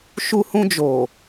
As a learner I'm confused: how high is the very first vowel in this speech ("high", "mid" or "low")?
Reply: high